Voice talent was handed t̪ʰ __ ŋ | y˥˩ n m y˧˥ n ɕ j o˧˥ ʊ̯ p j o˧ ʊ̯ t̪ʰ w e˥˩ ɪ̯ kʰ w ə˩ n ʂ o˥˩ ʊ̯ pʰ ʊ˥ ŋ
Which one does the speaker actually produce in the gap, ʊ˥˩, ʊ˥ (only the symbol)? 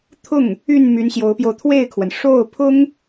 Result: ʊ˥˩